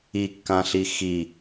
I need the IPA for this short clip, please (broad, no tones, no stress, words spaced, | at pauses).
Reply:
ikːãɬi xi